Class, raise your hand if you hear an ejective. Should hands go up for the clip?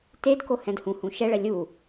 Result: no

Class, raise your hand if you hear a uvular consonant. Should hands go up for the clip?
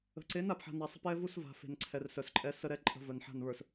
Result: no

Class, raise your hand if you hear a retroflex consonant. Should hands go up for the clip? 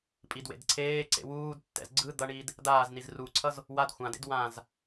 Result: yes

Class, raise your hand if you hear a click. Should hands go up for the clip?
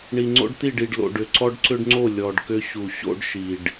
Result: yes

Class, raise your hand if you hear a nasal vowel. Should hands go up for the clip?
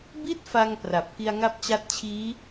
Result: no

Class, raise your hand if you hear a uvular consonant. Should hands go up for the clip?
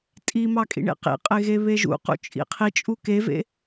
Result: yes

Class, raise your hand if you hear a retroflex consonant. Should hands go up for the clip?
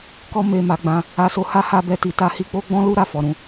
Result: no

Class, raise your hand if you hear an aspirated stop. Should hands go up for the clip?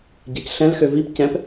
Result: no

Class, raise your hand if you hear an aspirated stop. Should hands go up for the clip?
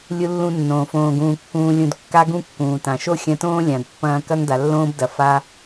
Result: no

